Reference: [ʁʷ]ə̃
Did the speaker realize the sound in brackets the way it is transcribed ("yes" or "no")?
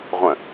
yes